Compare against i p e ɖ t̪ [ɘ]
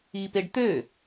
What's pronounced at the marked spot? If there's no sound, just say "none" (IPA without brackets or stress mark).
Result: ø